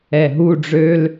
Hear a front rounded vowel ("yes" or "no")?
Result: yes